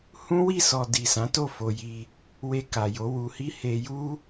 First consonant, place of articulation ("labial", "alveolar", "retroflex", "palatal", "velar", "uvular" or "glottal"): glottal